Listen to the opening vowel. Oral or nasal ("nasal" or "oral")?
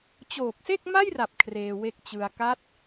oral